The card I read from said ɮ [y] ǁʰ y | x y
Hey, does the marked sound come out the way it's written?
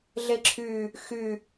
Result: no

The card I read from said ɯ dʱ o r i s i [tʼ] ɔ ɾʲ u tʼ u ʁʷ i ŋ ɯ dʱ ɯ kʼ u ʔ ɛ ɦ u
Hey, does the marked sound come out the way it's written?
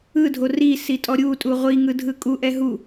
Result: yes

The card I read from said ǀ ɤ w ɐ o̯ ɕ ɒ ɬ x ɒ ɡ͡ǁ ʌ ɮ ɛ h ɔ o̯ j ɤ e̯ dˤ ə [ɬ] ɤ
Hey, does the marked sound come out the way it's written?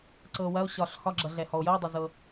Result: no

